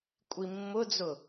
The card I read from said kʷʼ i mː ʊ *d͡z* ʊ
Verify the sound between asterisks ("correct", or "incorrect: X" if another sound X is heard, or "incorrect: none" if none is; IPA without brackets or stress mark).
correct